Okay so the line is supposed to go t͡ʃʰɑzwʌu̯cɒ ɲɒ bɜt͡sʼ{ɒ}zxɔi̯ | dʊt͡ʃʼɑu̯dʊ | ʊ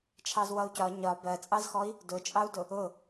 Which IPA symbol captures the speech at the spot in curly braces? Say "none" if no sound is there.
ɑ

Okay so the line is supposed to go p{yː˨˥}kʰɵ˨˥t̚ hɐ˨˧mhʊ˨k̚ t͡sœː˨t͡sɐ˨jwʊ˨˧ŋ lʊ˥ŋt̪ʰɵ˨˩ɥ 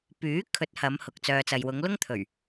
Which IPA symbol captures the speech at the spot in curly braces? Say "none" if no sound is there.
yː˨˥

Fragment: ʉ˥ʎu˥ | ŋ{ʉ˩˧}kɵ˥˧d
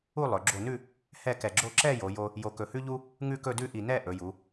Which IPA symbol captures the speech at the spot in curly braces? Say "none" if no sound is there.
ʉ˥˧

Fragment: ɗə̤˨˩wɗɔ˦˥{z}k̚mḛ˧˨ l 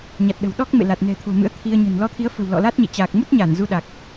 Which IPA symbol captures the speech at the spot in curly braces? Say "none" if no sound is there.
none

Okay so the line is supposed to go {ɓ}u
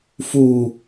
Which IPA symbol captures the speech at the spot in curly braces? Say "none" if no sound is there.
f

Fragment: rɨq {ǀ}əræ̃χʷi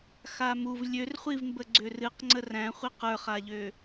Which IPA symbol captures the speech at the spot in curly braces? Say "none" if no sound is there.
ŋ͡ǀ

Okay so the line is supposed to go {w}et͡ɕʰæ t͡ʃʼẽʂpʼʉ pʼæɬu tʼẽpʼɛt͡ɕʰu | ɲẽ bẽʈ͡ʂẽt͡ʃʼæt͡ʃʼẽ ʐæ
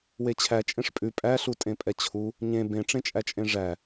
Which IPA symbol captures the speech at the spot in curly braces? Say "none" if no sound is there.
w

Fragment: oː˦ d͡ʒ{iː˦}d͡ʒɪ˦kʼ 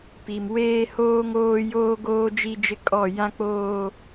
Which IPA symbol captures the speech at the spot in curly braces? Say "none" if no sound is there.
i˦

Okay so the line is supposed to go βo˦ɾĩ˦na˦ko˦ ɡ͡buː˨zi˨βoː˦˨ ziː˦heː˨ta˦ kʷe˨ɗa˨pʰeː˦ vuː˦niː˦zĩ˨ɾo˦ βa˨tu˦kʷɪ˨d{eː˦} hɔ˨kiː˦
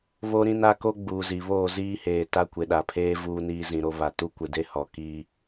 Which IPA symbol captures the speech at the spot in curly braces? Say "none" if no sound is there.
e˦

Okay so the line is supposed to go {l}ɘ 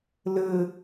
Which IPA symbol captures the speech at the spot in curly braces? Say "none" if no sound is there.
l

